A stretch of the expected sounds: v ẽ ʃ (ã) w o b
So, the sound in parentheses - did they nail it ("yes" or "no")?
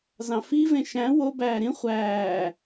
no